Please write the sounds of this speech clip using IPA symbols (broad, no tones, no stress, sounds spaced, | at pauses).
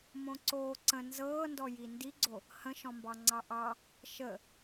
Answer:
m õ ǀ oː ǀ ə̃ n z ɤː n d ɔ j i n d i ɡ͡ǀ o | h ə̃ ʃ ɔ̃ m b ɑ ŋ͡ǀ ɑ ʔ ɑ | ʃ ə